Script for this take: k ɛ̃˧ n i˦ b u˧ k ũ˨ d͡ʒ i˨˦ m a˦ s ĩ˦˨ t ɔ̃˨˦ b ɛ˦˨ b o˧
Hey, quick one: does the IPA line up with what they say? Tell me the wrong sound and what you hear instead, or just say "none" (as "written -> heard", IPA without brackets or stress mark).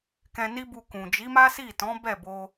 ĩ˦˨ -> i˦˨